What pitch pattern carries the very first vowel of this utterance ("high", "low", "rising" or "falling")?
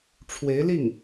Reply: rising